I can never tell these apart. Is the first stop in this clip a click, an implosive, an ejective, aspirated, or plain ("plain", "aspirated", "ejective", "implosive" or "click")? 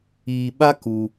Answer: implosive